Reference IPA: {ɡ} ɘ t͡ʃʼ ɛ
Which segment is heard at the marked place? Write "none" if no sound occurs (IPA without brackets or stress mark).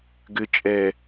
ɡ